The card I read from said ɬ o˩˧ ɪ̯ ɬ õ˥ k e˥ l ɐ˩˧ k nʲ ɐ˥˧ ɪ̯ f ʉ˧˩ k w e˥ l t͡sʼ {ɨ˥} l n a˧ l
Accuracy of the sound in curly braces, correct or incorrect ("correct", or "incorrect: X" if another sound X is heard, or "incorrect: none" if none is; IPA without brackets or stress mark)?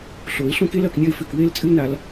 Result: correct